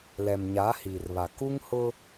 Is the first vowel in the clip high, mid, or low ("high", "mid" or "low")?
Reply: mid